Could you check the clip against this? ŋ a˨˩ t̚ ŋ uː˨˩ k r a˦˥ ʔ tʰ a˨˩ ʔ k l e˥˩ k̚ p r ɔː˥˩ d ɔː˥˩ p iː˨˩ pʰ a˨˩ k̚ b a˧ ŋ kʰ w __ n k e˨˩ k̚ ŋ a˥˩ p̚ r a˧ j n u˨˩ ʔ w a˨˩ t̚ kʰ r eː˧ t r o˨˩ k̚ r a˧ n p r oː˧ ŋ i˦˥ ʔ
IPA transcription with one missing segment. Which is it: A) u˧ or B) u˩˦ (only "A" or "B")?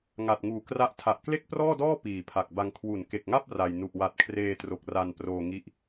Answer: B